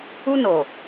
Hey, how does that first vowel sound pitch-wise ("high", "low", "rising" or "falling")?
high